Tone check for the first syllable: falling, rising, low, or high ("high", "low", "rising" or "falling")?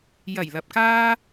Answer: low